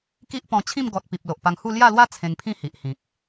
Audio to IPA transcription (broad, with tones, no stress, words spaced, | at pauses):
ki˦ʔpɔ̃˧t͡ɕʰĩ˥˧m ɡɔ˨t̚ pi˨p̚lo˨ʔpa˧ŋhu˥˧ lja˥˧lwa˦ t͡sʰẽ˧ŋpʰĩ˥˧hi˨ʔhĩ˨k̚